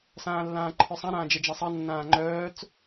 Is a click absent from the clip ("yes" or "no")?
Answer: no